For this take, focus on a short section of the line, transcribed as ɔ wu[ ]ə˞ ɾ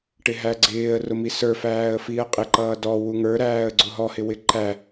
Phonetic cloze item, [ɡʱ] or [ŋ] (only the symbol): ŋ